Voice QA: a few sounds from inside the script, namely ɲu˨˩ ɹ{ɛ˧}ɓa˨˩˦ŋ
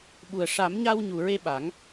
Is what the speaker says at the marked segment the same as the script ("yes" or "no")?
no